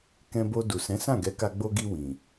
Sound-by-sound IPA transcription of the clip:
k ɛ̃˧ b o˧ d u˨ s ɛ̃˨˦ s ã˦˨ ɡ ɛ˨˦ k a˧ ɡ͡b o˧ ɡ i˧ w ĩ˨

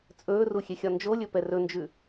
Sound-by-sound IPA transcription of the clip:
t͡sʼ ɵː r u xʲ e xʲ ɒ n d͡ʒ o lʲ ɵ p ɛ r ɵ n d͡ʒ ʉ

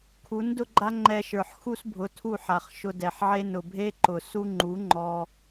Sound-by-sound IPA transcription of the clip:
kʰ u˨˦ n d ʊ˦ ɡ͡ǃ a˦ ŋ͡ǃ ɛ˧ ʃ ə˞˨ ħ x u˦ s bʱ ʊ˨˦ tʰ u˦˨ ħ a˨ χ ʃ ʊ˧ d ɛ˨ ħ ʕ e˦ n ʊ˨ bʱ e˦ ǃ ʊ˨ s u˦ ŋ͡ǃ u˨˦ ŋ͡ǃ ɔ˧

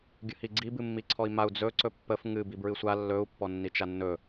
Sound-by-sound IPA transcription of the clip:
ɡʲ ə h i ɡ͡ǀ i b ɨ mː i ǀʰ ɔ i̯ m a u̯ d͡z ɵ ǀ ɵ pː ə f ŋ ɨ b i b ɹ ɨ sʷ a lː ɵ u̯ pː ɔ nː i t͡ʃ a nː ɵ

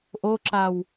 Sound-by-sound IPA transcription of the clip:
ʔ o ǁ a w

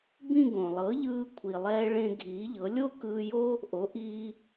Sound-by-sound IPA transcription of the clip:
b ĩ˥˧ ɡ õ˩ lˠ ɤ˩˥ ʎ ɯː˧ kʷʰ i˩ lˠ ɛː˧ ɭ ẽ˧ ɡʱ iː˩˥ ʎ ɤ˩˥ lʲ o˥ k ɯː˧ j o˥ | ʔ o˩˥ ʔ iː˧

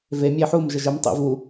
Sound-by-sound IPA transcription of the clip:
v e mʲ e ħ u m ʒ ə ʒ ə m tˤ ḛ v u

